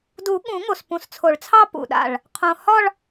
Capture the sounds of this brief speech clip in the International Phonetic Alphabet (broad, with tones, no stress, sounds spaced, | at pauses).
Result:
d u˨˩˦ ɠ ũ˨˩˦ ŋ o˨˩ s p ũ˨˩ s t͡sʰ o˨˩˦ ɭ t͡sʰ ɑ˥˧ p ṵ˨˩ ɗ a̰˨˩ ɭ | qʰ õ˨˩ h ɒ˥˧ ɭ